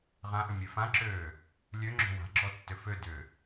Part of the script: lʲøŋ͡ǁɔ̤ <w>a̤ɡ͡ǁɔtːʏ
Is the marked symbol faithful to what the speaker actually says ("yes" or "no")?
yes